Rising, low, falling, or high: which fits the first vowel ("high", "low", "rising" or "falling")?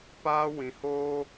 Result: high